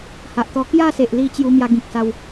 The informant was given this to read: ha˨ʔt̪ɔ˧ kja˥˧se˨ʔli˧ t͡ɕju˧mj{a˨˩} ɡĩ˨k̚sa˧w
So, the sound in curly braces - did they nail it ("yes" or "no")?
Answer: no